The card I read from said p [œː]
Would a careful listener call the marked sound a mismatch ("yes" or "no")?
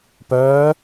no